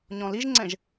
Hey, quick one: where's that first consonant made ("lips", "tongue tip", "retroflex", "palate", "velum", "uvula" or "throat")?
palate